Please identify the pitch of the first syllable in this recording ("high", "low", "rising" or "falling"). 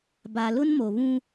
low